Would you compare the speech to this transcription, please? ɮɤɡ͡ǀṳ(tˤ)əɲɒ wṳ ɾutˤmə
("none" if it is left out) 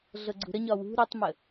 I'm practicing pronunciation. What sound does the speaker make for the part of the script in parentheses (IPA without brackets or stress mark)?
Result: ɾ